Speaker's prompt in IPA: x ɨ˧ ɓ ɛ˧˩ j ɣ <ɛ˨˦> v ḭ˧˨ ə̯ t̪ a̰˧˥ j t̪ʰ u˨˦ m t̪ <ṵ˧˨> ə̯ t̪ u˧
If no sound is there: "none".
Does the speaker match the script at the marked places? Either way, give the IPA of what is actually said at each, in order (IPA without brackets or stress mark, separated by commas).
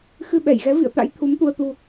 ɛ˨˦, u˧